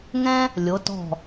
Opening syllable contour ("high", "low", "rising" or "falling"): high